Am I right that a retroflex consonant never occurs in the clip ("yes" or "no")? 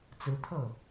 yes